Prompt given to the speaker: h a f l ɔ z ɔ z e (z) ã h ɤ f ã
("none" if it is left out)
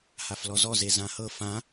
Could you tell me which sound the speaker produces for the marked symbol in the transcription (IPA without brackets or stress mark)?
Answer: z